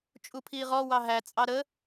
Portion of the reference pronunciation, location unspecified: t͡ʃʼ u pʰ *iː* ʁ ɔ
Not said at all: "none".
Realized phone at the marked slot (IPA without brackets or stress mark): iː